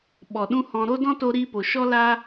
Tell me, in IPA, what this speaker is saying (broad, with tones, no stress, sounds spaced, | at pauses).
ɓ ɔ˨ ɗ ũ˦ h ɔ̃˧ ɾ o˦ d ɔ̃˦ t o˦ ɾ iː˦ p o˨ ʃ ɔ˦ l a˦